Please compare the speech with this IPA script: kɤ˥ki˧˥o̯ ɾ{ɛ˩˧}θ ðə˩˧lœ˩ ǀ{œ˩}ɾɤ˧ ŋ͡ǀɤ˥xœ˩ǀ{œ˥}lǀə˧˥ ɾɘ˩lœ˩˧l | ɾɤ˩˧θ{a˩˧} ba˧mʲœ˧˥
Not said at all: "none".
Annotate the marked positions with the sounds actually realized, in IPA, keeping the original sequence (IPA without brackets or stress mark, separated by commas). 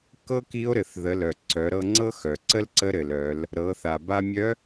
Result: ɘ˩˧, œ˩˧, ə˥, a˩